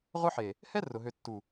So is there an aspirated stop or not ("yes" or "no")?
no